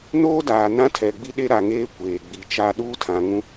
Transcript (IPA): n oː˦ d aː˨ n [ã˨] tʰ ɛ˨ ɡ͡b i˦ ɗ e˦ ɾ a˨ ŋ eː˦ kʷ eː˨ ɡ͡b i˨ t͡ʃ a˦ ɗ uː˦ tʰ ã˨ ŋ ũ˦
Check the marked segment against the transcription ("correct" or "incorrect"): incorrect